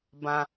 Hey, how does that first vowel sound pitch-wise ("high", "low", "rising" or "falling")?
high